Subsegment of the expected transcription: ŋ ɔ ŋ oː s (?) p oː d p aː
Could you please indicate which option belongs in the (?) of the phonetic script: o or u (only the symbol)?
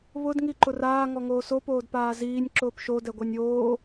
o